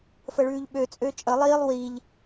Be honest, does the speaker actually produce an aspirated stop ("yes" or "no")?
no